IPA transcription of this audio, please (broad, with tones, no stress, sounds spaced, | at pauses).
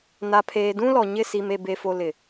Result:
n a˨ pʰ eː˨ d ũ˦ l ɔ˨ ɲ ɪ˦˨ s i˨ m e˨ b e˨ f o˨ l ɪ˨